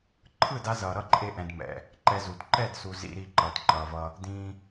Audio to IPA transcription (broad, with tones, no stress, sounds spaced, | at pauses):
ǃʰ ɯ˦˨ d a˧ z ʌː˨ ɾ ʌ˦ ǃʼ e˧ ʔ ɛ̃˨ d m ɛ̰˨ | ǃ ɛ˧ z u˨ d ǃ ɛ˦˨ d s u˨ z ḭ˧ ɾ i˧ ǃ ʌː˧ t ǃ ʌː˧ v ʌ˦ | d ĩː˦